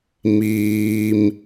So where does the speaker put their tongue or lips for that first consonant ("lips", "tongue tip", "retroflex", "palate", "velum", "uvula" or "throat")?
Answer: lips